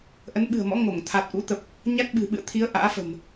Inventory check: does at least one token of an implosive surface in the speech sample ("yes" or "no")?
yes